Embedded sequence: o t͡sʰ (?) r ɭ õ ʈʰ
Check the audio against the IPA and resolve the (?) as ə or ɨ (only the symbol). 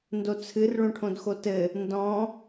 ɨ